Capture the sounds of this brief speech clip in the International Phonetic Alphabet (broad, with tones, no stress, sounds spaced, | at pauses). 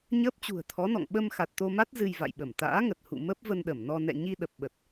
ɲ əː˦˥ p̚ t͡ɕ ṳ˨˩ ə̯ t̪ʰ ɔ˨˦ n ɔ̰˧˨ ŋ ɓ ə˧ m x a˨˩ t̚ t̪ o˧ m a˦˥ t̚ z ɨ˧ j v a̰˧˨ j ɓ ə˧˩ m t̪ a̰ː˧˥ ŋ ə˨˩ t̚ h ṵ˧˨ m ə˦˥ p̚ v ə˧ n ɗ ə˧˩ m n ɔ˧ n ɛ̰˧˨ ɲ i˧ ɗ ə˨˩ p̚ ɓ ə˨˩ t̚